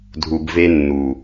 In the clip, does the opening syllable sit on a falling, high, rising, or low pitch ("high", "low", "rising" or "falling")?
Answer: low